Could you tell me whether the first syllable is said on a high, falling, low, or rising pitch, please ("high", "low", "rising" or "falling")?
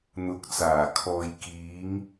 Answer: rising